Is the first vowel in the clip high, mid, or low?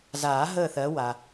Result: low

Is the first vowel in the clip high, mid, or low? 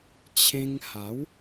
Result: mid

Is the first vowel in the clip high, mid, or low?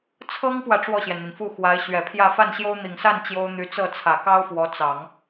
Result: mid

